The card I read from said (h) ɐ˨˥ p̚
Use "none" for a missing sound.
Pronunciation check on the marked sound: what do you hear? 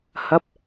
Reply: h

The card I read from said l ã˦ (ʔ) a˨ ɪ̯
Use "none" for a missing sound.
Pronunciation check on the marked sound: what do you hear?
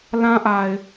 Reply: ʔ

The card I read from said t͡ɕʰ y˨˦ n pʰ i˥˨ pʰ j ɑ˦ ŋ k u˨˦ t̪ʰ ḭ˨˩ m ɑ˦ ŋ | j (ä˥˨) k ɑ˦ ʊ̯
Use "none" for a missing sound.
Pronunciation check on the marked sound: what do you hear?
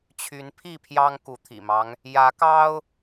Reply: ä˨˦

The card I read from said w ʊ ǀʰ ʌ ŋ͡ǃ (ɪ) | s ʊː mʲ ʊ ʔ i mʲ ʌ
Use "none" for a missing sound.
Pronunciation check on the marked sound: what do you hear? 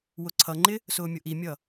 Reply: ɪ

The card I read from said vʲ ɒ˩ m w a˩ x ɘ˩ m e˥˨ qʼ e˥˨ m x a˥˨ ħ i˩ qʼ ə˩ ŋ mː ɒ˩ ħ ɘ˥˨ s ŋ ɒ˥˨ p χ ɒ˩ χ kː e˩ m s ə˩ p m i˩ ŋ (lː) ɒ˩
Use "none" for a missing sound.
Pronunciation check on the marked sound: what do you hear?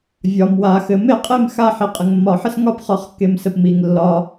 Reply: lː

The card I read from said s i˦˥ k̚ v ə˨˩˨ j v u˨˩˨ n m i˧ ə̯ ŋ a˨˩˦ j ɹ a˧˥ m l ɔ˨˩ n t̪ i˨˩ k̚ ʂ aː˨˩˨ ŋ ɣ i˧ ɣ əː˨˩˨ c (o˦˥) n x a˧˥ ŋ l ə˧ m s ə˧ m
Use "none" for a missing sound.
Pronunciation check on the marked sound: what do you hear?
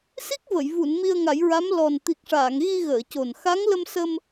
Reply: o˨˩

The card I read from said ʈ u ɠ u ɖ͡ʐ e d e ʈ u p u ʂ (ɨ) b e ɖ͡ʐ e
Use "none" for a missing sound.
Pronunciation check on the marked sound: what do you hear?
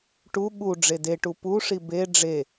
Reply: i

